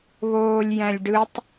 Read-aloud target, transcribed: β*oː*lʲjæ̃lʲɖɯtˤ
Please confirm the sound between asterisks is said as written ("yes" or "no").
yes